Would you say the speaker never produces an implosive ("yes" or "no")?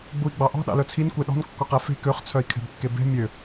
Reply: no